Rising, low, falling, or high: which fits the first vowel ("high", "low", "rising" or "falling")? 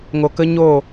low